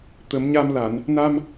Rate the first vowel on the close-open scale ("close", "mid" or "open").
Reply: mid